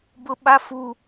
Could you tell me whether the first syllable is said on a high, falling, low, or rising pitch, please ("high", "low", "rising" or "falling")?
high